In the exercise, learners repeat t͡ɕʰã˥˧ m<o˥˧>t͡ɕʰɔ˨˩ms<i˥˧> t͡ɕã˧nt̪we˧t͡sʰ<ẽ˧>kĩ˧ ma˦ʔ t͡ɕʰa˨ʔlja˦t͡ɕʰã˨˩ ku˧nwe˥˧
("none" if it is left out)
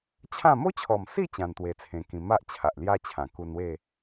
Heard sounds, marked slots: o˦, i˥˧, ẽ˧

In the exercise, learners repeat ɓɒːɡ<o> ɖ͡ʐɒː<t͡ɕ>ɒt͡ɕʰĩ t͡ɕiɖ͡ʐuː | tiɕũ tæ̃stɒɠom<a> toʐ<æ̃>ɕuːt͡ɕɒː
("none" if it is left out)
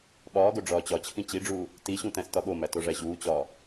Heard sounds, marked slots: o, t͡ɕ, æ, æ

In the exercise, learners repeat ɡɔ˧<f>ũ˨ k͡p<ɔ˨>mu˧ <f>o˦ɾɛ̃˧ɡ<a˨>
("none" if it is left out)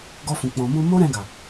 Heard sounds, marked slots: f, ɔ̃˨, m, a˨

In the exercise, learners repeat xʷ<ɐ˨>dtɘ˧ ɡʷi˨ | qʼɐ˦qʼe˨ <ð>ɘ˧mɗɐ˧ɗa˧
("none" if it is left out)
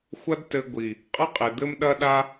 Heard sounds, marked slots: ɐ˦, d̪

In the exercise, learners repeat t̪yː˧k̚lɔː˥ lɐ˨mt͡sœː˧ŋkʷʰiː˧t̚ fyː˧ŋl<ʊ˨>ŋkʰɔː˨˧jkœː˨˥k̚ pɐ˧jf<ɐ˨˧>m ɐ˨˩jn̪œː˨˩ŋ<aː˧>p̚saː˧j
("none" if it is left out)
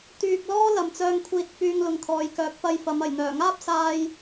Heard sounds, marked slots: ʊ˨, ɐ˨˧, aː˥

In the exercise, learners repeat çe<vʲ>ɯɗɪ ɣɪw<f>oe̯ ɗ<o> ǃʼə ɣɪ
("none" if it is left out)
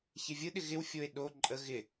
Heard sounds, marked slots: vʲ, fʲ, o

